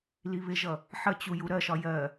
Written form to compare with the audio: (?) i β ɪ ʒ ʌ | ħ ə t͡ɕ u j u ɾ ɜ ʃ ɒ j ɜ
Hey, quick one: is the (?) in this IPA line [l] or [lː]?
l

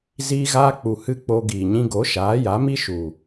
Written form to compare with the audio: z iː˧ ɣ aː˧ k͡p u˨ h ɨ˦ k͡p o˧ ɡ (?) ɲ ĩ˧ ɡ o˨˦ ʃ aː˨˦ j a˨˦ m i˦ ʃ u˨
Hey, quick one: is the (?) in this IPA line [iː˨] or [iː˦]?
iː˨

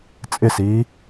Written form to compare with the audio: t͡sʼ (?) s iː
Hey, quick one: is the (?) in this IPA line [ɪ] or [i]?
ɪ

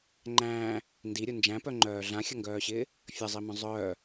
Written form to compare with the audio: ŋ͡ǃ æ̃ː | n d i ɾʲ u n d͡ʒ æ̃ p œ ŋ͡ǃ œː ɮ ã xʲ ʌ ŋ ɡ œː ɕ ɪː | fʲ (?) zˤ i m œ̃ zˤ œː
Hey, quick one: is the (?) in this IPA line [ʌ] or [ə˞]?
ʌ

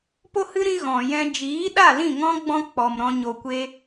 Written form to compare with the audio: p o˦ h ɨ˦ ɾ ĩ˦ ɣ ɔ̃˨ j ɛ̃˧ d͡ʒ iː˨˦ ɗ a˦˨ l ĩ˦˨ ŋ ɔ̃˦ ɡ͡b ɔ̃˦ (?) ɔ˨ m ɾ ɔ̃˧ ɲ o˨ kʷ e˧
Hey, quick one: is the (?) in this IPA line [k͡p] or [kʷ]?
k͡p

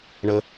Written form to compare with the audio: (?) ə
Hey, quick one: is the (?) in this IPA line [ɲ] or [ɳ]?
ɳ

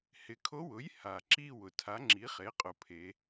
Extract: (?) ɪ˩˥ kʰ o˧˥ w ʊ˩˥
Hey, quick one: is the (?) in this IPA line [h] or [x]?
h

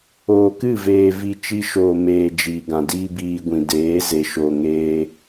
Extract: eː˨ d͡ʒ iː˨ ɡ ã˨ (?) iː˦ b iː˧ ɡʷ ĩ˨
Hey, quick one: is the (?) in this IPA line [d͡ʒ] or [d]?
d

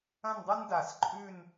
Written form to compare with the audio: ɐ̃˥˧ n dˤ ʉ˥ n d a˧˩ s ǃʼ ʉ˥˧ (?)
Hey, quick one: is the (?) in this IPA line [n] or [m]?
n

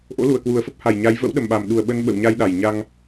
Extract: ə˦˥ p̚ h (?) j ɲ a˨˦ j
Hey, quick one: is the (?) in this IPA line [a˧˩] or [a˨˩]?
a˨˩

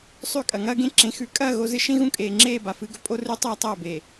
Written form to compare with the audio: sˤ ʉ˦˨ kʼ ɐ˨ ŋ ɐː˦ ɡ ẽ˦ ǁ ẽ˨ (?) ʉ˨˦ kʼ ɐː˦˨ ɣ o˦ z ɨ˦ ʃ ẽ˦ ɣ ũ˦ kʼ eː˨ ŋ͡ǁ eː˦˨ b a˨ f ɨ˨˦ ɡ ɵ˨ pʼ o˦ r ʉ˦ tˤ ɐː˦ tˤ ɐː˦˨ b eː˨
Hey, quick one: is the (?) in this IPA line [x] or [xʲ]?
x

